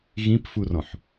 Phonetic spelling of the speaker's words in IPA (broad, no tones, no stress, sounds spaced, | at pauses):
ɣ ĩ p f u r ɔ̃ ħ